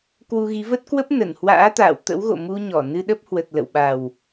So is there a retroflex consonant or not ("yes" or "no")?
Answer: no